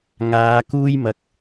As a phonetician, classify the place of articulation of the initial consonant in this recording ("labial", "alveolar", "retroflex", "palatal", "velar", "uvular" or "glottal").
velar